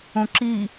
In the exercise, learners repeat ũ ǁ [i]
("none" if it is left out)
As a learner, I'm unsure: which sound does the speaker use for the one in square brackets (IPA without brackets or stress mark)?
i